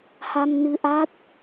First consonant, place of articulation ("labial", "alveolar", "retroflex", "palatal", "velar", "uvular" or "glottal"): glottal